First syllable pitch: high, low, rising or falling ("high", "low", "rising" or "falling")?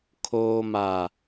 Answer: low